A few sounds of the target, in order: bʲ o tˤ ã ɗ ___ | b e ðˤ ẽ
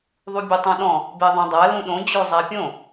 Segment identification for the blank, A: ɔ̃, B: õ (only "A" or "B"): A